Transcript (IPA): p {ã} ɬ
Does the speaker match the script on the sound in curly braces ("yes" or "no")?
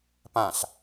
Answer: yes